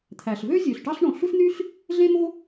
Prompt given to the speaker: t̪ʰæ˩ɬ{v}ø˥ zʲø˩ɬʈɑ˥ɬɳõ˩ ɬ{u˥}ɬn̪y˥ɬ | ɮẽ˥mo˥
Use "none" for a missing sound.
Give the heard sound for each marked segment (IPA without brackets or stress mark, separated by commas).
v, u˥